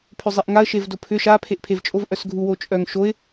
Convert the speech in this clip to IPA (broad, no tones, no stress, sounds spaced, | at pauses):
pʰ ʏ zˤ e ʔ ŋ a ə̯ ʃ e v d o pʰ ʏ ʃ a pʰ e ʔ pʰ e v t͡ʃʼ o v ʔ œ s ɡʱ u w o t͡ʃʼ œ ŋ ʃ o ɪ̯